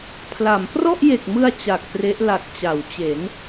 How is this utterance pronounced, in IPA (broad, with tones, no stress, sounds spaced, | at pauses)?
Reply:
pʰ l a˩˦ m p r ɔ˥˩ ʔ j e˨˩ k̚ m ɯ˧ a̯ t͡ɕ a˨˩ k̚ p r e˦˥ ʔ l a˨˩ k̚ t͡ɕ a˩˦ w t͡ɕ e˩˦ n